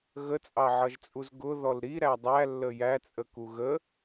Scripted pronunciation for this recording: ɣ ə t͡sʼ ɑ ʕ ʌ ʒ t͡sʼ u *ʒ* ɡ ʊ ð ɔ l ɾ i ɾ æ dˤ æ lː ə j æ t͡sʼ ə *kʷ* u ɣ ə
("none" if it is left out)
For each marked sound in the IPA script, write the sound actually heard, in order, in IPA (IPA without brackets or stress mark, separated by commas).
z, k